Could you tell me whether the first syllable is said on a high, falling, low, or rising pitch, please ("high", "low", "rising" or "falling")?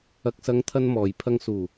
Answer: low